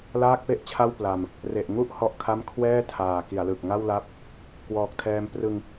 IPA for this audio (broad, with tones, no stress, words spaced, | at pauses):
laː˥˩k̚pe˥˩ʔt͡ɕʰa˥˩w pla˧m | re˨˩ʔŋu˥˩ʔ hɔ˥˩ʔkʰa˥˩m kʰwɛː˥˩tʰaː˨˩ ki˩˦a̯lɯ˨˩k̚ŋa˥˩wla˥˩p̚ | kwɔː˨˩k̚tʰɛː˧m prɯ˧ŋ